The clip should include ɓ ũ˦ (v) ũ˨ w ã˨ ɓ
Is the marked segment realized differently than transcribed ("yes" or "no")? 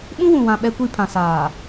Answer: yes